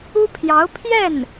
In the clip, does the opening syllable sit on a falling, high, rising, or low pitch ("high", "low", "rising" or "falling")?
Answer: high